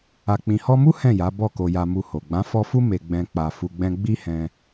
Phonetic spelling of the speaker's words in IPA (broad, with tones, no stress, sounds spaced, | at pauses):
a˨ k͡p ĩ˨ h ɔ˧ m u˦ h ɛ̃˦˨ j a˨˦ b ɔ˦˨ k o˧ j a˧ m u˧ h o˨ ɡ͡b ã˨˦ f ɔ˧ f u˦ m e˧ ɡ͡b ɛ̃˧ k͡p a˧ f u˧ ɡ͡b ɛ̃˦ ɡ͡b i˦ h ɛ̃˧